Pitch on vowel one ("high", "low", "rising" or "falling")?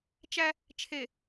high